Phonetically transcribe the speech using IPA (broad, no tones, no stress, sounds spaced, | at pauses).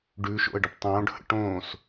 ɖ ʉ ʃ o̰ ə̯ ɖ ə p tˤ õː ɖ h ə̰ ʈ õː s